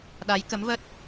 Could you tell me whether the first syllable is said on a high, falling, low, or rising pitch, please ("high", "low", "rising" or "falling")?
rising